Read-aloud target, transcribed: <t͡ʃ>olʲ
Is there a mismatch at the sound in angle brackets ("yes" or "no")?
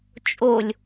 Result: yes